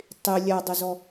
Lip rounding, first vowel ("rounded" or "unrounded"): unrounded